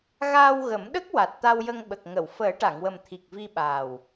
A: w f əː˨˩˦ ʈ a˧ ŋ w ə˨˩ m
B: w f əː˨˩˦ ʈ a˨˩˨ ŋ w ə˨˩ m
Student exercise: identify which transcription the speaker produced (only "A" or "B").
B